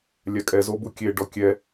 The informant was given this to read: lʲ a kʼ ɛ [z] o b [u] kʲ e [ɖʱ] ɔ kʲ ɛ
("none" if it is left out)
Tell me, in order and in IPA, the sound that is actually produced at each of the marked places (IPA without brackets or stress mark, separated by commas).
z, u, ɖ